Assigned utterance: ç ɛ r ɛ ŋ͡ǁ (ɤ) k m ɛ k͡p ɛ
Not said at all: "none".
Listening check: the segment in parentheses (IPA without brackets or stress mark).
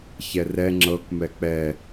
ɤ